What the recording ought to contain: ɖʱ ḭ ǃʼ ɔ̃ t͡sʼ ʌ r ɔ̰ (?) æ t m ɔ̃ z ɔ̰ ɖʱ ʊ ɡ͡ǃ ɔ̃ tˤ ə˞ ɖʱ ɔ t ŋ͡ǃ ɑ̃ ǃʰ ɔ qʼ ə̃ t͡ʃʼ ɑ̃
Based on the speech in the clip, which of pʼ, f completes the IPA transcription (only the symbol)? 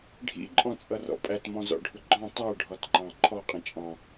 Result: pʼ